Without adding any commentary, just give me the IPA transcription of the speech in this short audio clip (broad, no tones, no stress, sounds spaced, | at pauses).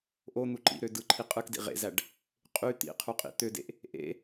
ʔ o n̪ u ǃ ḭ ɾ ø d ɯ ǃʰ i qʼ ɯ k d ḭ ʁ ḛ z æ ɖ | qʼ y t̪ ḭ qʰ u qʼ ḭ t̪ ø d ḛ ʔ | ʔ ḛ